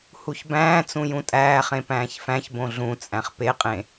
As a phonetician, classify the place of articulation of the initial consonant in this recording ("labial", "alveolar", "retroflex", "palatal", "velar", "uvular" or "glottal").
glottal